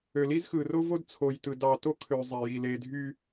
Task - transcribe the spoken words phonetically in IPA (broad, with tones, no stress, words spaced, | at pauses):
ø˨ li˦z xɯ˨ro˦ vo˦dt͡sʰo˨jtɯ˨ dɑ˨to˦kʰø˨ zˤe˨ji˨ le˨dʱy˦